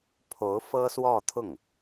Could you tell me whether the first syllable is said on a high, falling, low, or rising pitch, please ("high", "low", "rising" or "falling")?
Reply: rising